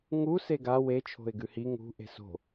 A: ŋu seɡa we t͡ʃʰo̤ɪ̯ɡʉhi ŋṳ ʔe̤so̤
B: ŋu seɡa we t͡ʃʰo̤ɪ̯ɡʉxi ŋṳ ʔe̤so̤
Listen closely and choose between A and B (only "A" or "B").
A